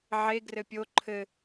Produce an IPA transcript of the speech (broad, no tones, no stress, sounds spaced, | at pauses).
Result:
ʕ e ɡ r ɘ pʲ o ǃʰ ɘ